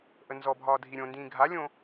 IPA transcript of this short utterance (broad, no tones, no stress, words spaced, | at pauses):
ʔənzɔbʱɒː dʱiɾʲõndĩː ɡʱalʲõ